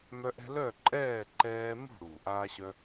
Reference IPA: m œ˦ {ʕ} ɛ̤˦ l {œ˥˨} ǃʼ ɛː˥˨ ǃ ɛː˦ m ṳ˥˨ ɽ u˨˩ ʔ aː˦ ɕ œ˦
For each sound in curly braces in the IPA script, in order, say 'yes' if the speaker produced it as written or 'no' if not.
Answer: no, yes

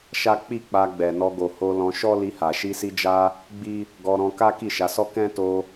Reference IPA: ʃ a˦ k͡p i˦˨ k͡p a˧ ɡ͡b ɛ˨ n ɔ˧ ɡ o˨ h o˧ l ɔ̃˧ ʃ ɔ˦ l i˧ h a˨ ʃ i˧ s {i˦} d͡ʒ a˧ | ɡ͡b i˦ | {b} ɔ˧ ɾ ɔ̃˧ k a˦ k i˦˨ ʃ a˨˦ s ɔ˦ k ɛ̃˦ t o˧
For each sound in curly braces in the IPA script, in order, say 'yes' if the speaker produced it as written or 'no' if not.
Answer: no, no

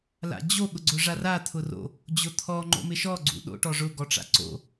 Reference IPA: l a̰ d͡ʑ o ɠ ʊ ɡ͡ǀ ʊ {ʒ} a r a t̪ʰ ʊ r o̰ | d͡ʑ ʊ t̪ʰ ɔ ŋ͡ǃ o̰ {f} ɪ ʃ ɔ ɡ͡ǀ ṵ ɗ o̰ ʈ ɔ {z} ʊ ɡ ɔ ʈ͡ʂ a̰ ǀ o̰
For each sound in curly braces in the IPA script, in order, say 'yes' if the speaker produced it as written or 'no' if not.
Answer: no, no, no

